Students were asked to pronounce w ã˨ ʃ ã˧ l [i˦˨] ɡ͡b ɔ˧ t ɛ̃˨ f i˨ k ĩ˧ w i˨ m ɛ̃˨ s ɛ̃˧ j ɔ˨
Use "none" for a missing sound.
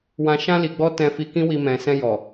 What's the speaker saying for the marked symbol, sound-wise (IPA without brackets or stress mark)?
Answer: i˨